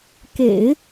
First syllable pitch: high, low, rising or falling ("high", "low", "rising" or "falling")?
low